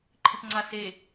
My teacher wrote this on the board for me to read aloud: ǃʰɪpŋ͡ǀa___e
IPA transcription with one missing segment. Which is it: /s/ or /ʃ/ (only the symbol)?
s